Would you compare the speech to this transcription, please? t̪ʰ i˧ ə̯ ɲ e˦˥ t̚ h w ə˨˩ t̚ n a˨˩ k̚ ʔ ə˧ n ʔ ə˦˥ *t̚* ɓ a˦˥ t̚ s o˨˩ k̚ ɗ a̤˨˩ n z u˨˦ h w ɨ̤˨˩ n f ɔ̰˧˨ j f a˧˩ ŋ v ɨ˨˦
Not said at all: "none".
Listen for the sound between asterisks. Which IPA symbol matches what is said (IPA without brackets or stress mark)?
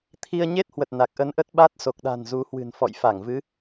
t̚